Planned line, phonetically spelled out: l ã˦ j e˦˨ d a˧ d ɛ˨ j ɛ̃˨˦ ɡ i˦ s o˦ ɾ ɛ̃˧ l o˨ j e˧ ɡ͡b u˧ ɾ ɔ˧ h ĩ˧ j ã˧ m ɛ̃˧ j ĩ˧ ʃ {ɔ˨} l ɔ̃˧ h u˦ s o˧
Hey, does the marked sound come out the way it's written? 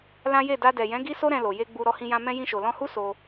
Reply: no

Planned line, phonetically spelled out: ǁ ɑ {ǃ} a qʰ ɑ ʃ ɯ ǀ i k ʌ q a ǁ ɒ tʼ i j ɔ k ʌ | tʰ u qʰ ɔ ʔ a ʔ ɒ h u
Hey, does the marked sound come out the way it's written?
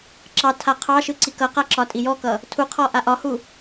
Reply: no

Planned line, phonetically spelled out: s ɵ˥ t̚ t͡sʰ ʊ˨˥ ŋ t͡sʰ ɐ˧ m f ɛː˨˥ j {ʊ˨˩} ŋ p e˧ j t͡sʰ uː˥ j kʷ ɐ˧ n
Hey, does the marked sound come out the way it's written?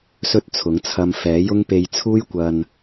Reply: no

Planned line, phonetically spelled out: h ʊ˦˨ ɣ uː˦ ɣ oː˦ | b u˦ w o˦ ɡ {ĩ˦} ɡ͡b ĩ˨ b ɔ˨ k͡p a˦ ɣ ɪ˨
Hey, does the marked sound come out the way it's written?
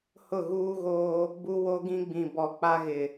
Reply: yes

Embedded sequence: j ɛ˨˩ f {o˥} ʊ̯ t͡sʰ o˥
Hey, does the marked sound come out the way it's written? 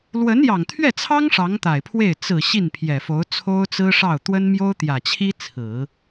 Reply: no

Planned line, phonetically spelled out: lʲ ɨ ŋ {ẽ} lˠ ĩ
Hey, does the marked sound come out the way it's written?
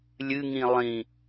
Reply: no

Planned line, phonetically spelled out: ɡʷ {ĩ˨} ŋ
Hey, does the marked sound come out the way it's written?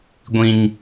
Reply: yes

